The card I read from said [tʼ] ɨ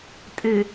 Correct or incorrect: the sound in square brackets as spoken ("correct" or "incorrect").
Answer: correct